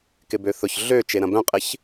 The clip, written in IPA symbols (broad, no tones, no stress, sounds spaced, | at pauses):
k ɪ b ø θ ʊ ç ɮ ø t͡ʃ e ɾ ɐ̃ b œ̃ qʼ ɪ ç